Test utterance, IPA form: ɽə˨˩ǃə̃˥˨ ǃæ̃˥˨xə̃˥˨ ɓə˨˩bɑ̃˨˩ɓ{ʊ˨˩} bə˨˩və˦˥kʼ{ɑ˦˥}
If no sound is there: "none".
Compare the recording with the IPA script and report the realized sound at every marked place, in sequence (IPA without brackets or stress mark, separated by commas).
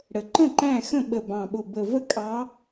ʊ˨˩, ɑ˨˦